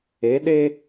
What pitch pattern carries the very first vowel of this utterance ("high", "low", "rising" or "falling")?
rising